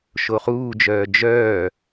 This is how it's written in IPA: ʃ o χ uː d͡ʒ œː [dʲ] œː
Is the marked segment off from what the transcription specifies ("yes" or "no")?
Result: yes